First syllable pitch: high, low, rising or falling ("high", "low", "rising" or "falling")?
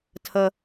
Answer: high